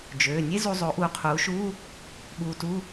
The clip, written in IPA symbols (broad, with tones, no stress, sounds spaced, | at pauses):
d͡ʒ øː˩˧˩ nʲ e˥ z u˧ zˤ o˩˥ ʔ uː˩˥ qʰ uː˩˥ ʃ uː˧˥˧ | ɓ uː˧ t u˧˥˧